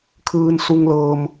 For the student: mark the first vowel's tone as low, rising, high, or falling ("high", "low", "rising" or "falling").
low